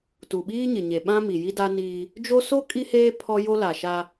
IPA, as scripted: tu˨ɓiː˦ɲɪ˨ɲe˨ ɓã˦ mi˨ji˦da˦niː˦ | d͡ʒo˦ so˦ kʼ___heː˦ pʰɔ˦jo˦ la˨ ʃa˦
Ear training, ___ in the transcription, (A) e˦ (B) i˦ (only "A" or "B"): B